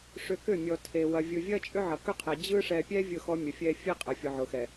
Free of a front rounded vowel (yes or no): no